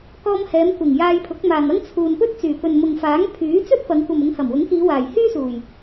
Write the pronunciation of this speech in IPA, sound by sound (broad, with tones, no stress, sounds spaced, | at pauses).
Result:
k ɔː˧ m h ɛː˨˧ m kʷ ɪ˨˩ ŋ j aː˧ j pʰ ʊ˨˥ k̚ m aː˨ ŋ ɐ˥ ŋ t͡sʰ uː˨ n p ɵ˥ t̚ t͡s yː˨˩ p ɵ˨ n m ʊ˨ ŋ f aː˨˥ ŋ pʰ yː˨˥ t͡s ɵ˥ t̚ p ɐ˨˧ ŋ kʷ ɐ˨ m ʊ˨˧ ŋ h ɐ˨˩ m w ʊ˨˥ ŋ k iː˨˧ w aː˨˩ j h yː˥ s uː˨˩ j